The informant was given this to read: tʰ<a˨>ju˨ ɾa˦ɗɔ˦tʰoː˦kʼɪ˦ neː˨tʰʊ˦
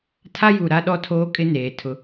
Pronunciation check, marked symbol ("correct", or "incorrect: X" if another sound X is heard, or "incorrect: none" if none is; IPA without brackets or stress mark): incorrect: a˦